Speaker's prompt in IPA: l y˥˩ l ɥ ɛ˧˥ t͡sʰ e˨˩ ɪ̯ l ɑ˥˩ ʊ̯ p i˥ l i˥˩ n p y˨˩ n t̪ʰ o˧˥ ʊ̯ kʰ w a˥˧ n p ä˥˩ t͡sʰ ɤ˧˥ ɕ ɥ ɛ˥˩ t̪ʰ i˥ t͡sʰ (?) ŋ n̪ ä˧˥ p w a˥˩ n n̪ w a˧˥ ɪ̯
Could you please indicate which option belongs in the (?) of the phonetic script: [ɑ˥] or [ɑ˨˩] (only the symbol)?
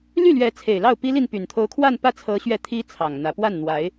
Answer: ɑ˨˩